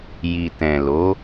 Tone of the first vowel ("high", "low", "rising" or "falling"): low